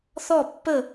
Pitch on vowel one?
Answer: falling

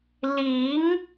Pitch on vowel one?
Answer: rising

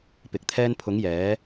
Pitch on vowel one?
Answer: low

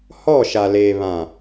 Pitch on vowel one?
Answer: falling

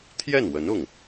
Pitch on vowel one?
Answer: falling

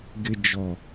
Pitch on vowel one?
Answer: high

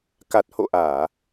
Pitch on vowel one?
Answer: low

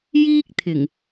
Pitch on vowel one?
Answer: high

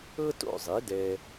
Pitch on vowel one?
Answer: high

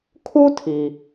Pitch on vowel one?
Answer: high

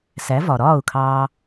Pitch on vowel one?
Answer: rising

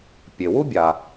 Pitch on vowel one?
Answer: low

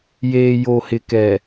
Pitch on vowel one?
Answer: low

